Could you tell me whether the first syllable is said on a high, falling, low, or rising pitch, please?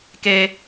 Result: high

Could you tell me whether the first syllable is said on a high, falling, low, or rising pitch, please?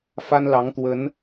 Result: high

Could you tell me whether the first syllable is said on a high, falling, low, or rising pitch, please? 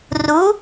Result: rising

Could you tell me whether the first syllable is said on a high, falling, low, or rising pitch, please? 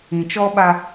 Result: low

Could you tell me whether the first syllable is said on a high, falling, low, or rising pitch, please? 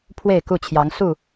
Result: falling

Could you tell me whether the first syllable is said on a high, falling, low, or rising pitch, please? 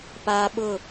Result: high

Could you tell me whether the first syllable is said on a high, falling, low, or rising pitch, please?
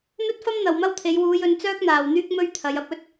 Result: high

